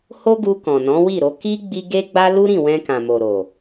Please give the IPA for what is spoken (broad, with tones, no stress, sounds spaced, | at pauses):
h o˦ ɡ u˧ k ɔ̃˨ n ɔ̃˨˦ w i˦˨ ɾ o˧ k i˦ ɡ͡b i˦ ɡ e˦ ɡ͡b a˦ l u˦ ɾ ĩ˦˨ w ɛ̃˧ k ã˨ m o˨ ɾ o˨